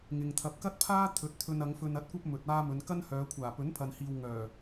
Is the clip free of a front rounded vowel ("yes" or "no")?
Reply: no